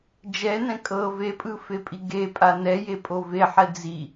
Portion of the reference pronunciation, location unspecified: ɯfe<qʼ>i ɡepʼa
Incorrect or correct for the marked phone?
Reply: incorrect: pʼ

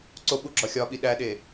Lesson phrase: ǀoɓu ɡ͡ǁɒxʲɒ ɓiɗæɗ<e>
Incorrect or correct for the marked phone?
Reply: correct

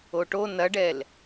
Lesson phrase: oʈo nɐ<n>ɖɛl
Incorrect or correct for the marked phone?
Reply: incorrect: none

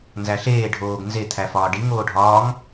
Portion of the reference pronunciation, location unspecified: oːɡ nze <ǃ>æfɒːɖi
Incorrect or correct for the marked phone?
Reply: incorrect: t̪ʰ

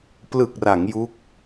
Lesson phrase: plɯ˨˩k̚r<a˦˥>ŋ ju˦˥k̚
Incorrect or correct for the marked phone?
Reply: incorrect: a˩˦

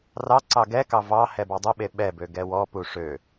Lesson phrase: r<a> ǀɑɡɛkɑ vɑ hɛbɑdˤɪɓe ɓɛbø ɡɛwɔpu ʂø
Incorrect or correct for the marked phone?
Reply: incorrect: ɑ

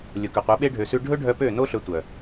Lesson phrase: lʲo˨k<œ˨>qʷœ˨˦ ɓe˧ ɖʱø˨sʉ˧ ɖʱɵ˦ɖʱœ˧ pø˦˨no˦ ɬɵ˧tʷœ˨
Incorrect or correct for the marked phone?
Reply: correct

